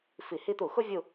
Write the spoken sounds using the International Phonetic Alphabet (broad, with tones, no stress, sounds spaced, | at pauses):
f i˧˩˧ h i˥ t̪ u˧˩˧ x ʊ˥ vʲ u˦˨